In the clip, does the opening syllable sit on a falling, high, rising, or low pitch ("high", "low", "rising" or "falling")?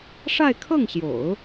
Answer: falling